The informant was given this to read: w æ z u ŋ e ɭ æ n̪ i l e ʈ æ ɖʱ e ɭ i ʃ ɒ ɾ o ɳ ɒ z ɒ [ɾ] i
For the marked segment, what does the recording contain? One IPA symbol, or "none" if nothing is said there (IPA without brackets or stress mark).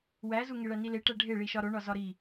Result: ɾ